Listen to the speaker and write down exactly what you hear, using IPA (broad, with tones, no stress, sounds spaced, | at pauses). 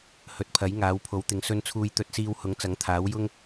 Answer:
h ɵ˨ t̚ pʰ ɐ˨˥ j ŋ aː˨˥ w pʰ o˨˥ w t̪ ɪ˨˧ ŋ s ɵ˧ n t͡sʰ uː˧ j t̪ ɵ˧ t̚ s iː˧ w h ʊ˨˥ ŋ t͡s ɐ˨˥ ŋ t̪ʰ aː˨˥ w j ʊ˥ ŋ